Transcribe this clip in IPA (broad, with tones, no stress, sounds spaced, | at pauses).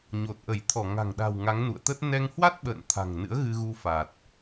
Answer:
ɲ o˨˩ t̚ ʔ ə˧˩ j t̪ʰ ɔ˧˩ ŋ a̤˨˩ ŋ ɗ a̤˨˩ w ŋ a˨˦ ŋ n ṵ˧˨ ə̯ t̪ ə˦˥ t̚ n ɛ˧ ŋ h w a˦˥ t̚ ɓ ə̰ː˧˨ n t̪ʰ a̤˨˩ ŋ n ɨ̰˧˥ ə̯ ɣ ɨ˧ ɣ u˧ f a˨˩ t̚